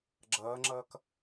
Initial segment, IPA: ɡ͡ǁ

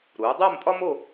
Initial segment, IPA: ɾ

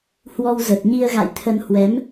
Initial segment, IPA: h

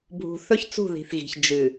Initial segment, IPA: bʱ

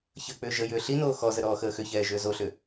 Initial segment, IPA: ç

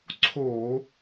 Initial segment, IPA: ǀʰ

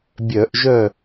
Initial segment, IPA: bʲ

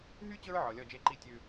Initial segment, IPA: ɦ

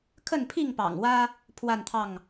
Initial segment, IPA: kʰ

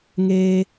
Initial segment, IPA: ŋ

